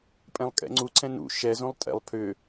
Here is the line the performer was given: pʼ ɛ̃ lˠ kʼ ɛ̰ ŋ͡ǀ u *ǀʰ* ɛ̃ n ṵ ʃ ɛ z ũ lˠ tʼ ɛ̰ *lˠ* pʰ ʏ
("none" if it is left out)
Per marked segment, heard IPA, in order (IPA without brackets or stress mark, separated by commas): ǀʰ, lˠ